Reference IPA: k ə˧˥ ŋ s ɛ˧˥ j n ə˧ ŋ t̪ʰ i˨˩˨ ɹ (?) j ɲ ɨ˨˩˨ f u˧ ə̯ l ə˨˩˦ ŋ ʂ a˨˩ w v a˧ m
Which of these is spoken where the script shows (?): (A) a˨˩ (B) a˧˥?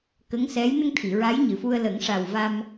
B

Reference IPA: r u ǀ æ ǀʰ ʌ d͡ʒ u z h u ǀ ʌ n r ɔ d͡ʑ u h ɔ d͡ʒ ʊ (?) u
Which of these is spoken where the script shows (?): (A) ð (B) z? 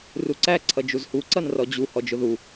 A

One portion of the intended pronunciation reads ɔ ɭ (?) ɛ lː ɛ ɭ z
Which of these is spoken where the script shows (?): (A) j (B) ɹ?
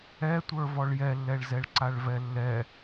A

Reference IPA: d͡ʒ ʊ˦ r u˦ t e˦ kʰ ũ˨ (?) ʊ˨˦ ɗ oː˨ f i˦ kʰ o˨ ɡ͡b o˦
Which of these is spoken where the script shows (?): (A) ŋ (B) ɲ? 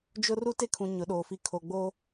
B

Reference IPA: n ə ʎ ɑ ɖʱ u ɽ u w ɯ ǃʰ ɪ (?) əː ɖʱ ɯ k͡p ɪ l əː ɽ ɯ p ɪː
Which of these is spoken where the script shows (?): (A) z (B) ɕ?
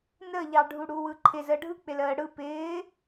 A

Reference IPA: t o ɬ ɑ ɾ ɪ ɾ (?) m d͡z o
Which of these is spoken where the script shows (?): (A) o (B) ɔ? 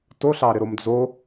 A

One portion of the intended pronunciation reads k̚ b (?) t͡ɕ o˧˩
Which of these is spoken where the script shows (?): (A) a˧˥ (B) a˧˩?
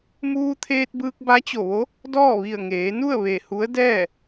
A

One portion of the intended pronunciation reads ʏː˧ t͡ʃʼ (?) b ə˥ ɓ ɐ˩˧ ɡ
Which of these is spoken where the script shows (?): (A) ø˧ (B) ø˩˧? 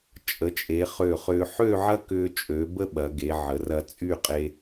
B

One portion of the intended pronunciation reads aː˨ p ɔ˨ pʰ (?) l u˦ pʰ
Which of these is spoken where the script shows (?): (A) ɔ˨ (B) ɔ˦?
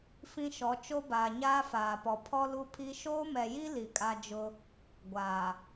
B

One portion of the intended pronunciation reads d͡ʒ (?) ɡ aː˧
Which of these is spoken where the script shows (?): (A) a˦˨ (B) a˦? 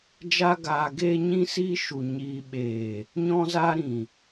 B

